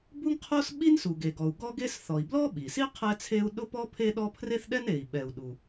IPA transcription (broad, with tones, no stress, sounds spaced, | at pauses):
b u˥ ŋ qʰ o˥ s ɓ i˥ n s u˩ ɡ e˩ ɡ ɔ˩ u̯ ɡ ɔ˥ ɡ e˥ s θ ɔ˩ i̯ b l ɔ˥ ɓ i˩ s i˥ qʰ ɛ˥ t͡sʰ e˥ u̯ ɗ ʊ˥ p ɔ˥ pʰ e˥ ɗ ɔ˥ pʰ r e˥ θ ɗ ɛ˥ n e˩ i̯ ɓ ɛ˩ u̯ ɗ u˩